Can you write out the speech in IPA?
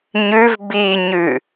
ɲ ʉ v b i ɲ ʉ

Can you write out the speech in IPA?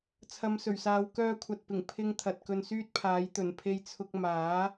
t͡sʰ ɐ˨˧ m s ɵ˨˩ ɥ s aː˨˧ w k œː˧ kʷʰ ɐ˨ t̚ p ɪ˨˩ ŋ pʰ ɪ˧ ŋ t̪ʰ ɐ˨ t̚ k ɵ˧ n s yː˥ t̚ pʰ aː˨˥ j t̪ ɵ˨˩ n pʰ e˧ j t͡sʰ ʊ˧ k̚ m aː˨˥

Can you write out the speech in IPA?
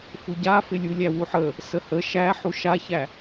f u ɟ a f ɪ lʲ u lʲ æ w u ħ ə | s ə h ə ʃ æ ħ u ʃ a ç æ

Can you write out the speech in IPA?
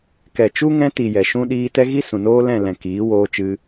k ɛ˨ t͡ʃ u˦ ŋ ɛ̃˧ t i˨ j ɛ˨ ʃ ũ˦ ɗ iː˧ t ɛ˦ ɣ i˦ s ũ˨ n oː˦ l ɛ̃˦˨ l ɛ̃˨ k iː˨˦ w oː˧ t͡ʃ ɨ˧

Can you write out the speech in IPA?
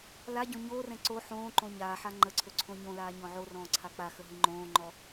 l a ɟ õ ɲ oː r ɛ̃ ǀ o ħ õː ǃ õ ɲ aː ħ a ŋ͡ǃ ə ǀʰ ɵ ǀʰ õ ɲ õ l aː ɲ ɔ̃ ʕ o r ɔ̃ː ǀʰ a k͡p a x ə ɦ i ŋ͡ǃ õː ŋ͡ǃ ɔ

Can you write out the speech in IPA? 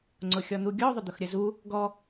ŋ͡ǀ ʊ xʲ ɔ n̪ u ɡʲ ɔ ðˤ ʊ d̪ ʊ x ɾʲ ə z u | ɡ ɔ

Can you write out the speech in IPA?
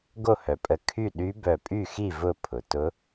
ɡ o˥˨ h œ˩ pʼ ə˧˩ kʰ y˥˨ ɗ y˧˥ b œ˧˩ pʼ y˥˨ x i˥˨ v ʊ˥˨ pʰ ʊ˩ t ʊ˧˥

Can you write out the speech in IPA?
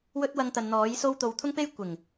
w ɵ˥ t̚ w ɐ˧ ŋ t̪ ɐ˨ n n̪ ɔː˨˥ j s o˧ w t̪ o˨ w t̪ʰ ʊ˥ ŋ p e˥ j kʷ ɪ˨˩ ŋ

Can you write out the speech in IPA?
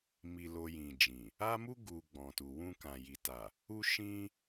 m i˧ l o˧ j ĩ˨ d͡ʒ ĩ˨ | a˦ m u˦ ɡ u˧ ɡ͡b ɔ̃˨ t u˨ w ũ˧ k ã˨ j i˨ t a˨ | u˦ ʃ ĩ˦

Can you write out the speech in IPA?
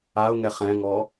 a ʊ̯ ŋ ɛ χ ɛ̃ ŋ ɔ

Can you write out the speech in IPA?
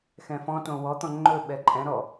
x ɛ̃ f ɔ̃ t õ w ɔ t̪ ɔ̃ ŋ͡ǃ ɵ ɓ ɛ ǃʼ ɛ̃ ɾ ɔ

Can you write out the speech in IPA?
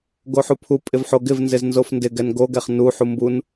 ɡ o ħ u pʰ u pʼ ɪ v ħ o ɡ ɪ v n z ɪ z n z o f n d ɪ ɡ ɛ n ɡ o ɡ ɛ χ n u ħ u m b u n

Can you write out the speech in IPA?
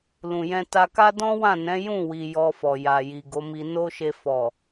l ũ˨ j ɛ̃˧ t a˧ k a˦ d ɔ̃˦ w ã˦˨ n ɛ̃˨˦ j ũ˦˨ w i˨ j ɔ˧ f ɔ˨ j a˨ j i˨ ɡ o˨˦ m i˧ n o˦ ʃ e˧ f ɔ˨

